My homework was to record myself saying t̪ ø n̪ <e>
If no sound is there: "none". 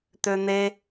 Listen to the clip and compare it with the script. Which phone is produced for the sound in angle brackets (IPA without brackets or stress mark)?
e